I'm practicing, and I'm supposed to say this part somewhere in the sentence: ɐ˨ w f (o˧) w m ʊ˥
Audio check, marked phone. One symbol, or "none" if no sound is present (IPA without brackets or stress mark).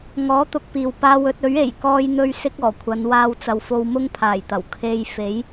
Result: o˧